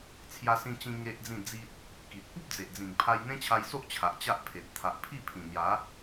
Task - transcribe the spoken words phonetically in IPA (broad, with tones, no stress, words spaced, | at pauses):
t͡sʰja˧sĩ˧t͡ɕĩ˧ ŋe˦ʔd͡zĩ˥˧d͡zi˦t̚ | ki˨t̚ pu˦p̚d͡ze˨ʔd͡zĩ˨˩ŋ pʰa˧jn̪ẽ˦t͡ɕʰa˧jso˦ʔ t͡ɕʰa˨ʔt͡ɕa˦ʔpʰe˨t̚ t̪ʰa˨ʔpʰi˥˧ pʰĩ˨˩n̪ja˨˦